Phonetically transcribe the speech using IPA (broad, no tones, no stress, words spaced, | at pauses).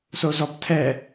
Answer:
sozɔptʰɛ